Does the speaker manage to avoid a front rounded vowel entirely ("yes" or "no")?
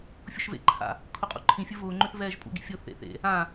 no